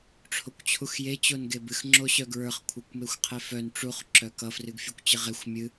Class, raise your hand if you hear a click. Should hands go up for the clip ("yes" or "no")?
yes